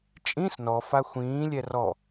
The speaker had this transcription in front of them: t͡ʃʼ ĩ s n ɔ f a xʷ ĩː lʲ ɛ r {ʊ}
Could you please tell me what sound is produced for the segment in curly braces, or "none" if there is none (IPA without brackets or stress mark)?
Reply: ɔ